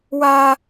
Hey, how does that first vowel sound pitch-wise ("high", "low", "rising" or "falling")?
high